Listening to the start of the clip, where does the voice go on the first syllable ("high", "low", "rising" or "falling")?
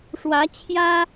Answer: rising